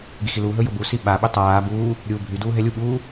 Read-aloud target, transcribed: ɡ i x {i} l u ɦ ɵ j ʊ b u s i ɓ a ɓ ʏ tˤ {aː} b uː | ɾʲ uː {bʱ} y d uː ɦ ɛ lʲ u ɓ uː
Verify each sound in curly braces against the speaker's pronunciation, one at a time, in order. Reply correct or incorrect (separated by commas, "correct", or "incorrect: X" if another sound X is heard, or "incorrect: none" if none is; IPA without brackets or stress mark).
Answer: correct, correct, correct